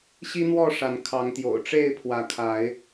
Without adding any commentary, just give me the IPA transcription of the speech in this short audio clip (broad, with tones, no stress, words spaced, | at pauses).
ɕi˦n̪wɔ˥˨ ʂa˨˦nkʰɑ˨˦ŋt̪jo̰˨˩ʊ̯ ʈ͡ʂe˥˨ɪ̯pʰwä˨˦kʰa˨˦ɪ̯